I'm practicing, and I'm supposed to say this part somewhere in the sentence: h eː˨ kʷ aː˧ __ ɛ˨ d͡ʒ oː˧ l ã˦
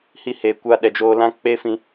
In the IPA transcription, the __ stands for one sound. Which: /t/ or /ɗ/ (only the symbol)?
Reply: ɗ